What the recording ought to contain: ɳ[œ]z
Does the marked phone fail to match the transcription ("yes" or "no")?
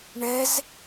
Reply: yes